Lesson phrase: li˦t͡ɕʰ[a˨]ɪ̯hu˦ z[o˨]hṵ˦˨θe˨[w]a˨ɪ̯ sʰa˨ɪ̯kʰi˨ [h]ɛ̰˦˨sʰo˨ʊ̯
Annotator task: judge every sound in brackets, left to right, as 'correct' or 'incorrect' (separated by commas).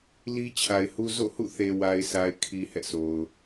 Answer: correct, incorrect, correct, correct